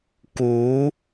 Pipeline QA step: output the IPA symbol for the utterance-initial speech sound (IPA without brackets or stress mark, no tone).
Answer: k